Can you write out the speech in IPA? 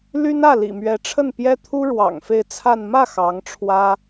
l y˥ n ä˥˩ l ḭ˨˩ m ɥ ɛ˧˥ ʈ͡ʂʰ ə˥˩ n p j ɛ˥ t̪ʰ u˥ ɻ w ɑ̰˨˩ ŋ f e˥˧ ɪ̯ t͡sʰ a˥˧ n m ä˥˩ x ɑ˧˥ ŋ ʈ͡ʂʰ w ä˥

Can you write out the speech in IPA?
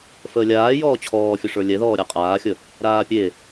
f əː lʲ aː j ɔː t͡ɕʰ ɔː fʲ ʊ ʂ ə˞ lʲ ɛ ð ɔː ɾʲ a qʼ aː xʲ ə | ɾ aː pʲ e

